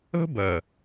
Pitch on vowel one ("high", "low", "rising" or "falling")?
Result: high